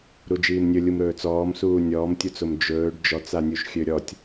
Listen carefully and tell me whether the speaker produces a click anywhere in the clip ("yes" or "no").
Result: no